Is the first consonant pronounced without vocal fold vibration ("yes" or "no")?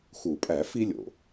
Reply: yes